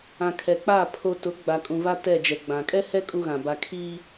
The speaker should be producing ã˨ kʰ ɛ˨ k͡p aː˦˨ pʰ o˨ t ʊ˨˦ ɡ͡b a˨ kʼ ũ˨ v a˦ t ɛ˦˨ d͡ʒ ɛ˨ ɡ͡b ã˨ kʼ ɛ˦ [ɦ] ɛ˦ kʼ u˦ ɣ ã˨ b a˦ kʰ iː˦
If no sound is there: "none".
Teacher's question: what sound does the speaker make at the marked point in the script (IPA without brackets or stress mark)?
h